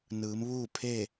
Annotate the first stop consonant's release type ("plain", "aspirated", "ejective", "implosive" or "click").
aspirated